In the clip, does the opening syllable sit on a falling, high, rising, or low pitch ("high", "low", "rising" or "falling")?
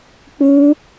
high